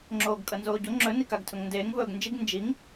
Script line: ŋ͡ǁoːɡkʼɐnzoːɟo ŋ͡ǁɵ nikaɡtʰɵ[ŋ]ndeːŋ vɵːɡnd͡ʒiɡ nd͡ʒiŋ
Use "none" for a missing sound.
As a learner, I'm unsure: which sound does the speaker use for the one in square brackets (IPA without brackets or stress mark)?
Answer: ŋ